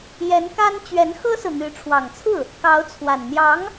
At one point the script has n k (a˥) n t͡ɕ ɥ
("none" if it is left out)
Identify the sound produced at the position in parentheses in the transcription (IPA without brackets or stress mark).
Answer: a˥